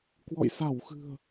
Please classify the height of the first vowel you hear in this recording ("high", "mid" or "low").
mid